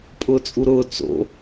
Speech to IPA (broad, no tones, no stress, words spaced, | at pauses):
pʼʊːt͡sʼuɾʊː t͡so̰